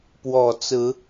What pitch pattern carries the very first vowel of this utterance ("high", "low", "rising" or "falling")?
low